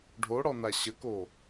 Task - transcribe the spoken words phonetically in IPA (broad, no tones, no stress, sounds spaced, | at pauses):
ɖʱ o ɽ ɔ n a ɕ ə k o